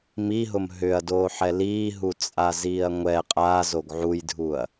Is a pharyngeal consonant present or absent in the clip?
present